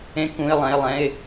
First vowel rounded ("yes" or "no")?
no